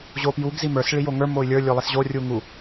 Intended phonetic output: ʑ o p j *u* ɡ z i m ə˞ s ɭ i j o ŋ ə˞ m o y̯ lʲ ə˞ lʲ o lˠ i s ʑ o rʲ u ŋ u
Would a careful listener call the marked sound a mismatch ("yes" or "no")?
no